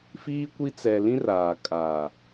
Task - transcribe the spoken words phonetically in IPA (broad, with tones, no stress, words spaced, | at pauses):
fiː˦kʷi˦ t͡sɛ˨lĩ˦r aː˨ kʼaː˨